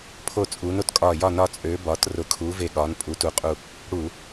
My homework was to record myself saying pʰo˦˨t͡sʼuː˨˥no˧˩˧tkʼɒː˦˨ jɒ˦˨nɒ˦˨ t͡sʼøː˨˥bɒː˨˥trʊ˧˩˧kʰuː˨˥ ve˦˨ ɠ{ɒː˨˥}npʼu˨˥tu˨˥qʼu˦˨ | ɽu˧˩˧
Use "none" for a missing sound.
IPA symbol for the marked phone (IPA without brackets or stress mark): ɒː˨˥